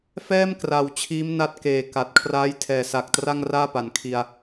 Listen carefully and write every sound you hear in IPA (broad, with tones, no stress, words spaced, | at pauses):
fɛː˥˩mkra˨˩w t͡ɕʰiː˦˥mna˦˥t̚keː˨˩ ka˨˩t̚ kʰraː˦˥jtʰɛː˨˩sa˨˩k̚ tra˥˩ŋraː˥˩pa˩˦nkʰi˧a̯